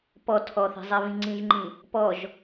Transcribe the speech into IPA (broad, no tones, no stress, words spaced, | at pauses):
pɔ tʰɔθe̤zˤeβĩ ŋ͡ǀĩʒŋ͡ǃĩ | pɔʒ